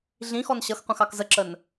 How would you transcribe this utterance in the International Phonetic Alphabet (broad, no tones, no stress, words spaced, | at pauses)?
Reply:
ɮĩxɔn ɕʌxqʷɛ̃x ɑkzəǁən